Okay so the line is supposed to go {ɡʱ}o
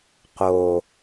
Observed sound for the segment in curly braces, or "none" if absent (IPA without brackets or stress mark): q